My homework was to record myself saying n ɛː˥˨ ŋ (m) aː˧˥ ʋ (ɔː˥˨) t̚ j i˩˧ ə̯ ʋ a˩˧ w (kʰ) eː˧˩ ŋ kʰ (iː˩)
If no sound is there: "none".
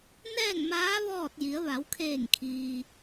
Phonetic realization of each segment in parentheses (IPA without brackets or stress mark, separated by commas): m, ɔː˥˨, kʰ, iː˩